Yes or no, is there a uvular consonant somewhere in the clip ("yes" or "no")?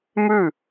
no